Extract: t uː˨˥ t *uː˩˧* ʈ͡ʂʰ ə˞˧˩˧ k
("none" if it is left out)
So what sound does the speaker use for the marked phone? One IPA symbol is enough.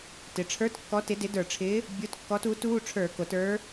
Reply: uː˧˥˧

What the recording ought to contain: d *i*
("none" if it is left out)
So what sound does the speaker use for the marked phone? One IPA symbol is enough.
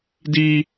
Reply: i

